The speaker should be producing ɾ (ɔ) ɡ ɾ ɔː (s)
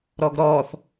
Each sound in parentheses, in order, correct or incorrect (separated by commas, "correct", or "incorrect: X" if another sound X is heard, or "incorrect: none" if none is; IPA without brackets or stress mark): correct, incorrect: θ